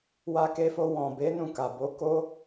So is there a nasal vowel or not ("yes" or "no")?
yes